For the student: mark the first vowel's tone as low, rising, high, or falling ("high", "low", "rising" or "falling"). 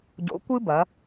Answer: rising